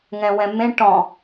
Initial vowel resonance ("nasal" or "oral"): nasal